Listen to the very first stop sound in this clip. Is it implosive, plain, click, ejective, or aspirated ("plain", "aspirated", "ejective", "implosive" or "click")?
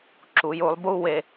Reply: click